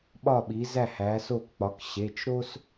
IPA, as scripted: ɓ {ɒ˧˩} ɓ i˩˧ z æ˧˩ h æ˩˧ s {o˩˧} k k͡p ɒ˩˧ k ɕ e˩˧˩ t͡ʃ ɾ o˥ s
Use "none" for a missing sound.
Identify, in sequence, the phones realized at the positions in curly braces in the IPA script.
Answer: ɒ˧˩, o˧˩

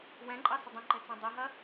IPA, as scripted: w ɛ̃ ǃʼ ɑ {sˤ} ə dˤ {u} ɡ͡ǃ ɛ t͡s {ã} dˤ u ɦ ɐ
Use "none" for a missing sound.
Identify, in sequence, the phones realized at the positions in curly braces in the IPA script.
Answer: s, ũ, ã

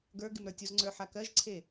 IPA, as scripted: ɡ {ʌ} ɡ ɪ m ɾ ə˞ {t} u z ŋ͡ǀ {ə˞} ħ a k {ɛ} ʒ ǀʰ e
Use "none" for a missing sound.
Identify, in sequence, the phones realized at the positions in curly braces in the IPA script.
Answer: ə˞, tʲ, ə˞, ɜ

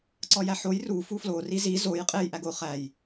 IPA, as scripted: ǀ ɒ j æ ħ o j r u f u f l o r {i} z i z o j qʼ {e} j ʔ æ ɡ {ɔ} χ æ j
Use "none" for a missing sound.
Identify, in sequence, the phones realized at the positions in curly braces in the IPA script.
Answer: i, e, o

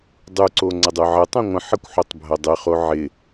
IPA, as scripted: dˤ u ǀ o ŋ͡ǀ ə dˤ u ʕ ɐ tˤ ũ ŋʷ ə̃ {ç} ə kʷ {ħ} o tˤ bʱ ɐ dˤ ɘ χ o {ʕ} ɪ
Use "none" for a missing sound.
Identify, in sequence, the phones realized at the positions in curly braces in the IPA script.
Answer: ħ, ħ, ʕ

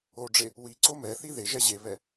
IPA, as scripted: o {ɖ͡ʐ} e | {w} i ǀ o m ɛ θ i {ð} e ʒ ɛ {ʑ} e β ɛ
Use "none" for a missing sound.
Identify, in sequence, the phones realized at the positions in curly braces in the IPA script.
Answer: ɖ͡ʐ, w, ð, ʑ

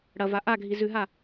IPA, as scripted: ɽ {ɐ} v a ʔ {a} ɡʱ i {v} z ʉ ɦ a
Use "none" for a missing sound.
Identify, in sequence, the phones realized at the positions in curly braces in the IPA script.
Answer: ɐ, a, none

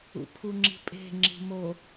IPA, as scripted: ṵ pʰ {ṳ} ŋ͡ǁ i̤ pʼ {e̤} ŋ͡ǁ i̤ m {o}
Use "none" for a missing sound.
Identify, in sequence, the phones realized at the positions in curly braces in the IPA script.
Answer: u, e̤, o

